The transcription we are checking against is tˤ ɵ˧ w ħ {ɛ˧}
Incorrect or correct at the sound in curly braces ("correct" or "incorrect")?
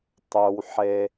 incorrect